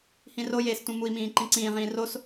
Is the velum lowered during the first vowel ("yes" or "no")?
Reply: yes